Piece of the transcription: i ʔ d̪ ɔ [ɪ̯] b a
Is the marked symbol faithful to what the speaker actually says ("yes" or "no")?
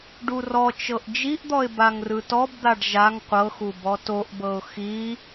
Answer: yes